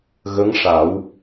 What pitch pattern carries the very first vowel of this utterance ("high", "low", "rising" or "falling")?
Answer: rising